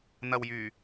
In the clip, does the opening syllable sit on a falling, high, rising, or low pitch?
low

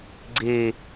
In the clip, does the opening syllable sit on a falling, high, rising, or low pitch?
low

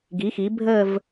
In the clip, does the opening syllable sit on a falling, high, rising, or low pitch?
rising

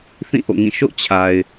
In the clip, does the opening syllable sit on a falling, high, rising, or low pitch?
falling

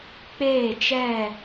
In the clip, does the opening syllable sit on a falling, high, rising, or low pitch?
falling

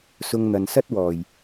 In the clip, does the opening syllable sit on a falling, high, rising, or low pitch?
high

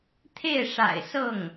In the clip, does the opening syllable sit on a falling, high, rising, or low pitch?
falling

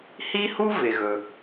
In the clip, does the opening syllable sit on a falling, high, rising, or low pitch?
high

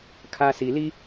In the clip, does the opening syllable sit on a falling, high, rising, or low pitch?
high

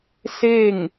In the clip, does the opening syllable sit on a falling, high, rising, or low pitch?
falling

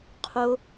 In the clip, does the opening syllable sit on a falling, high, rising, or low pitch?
high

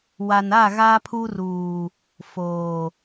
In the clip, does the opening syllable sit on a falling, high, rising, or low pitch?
low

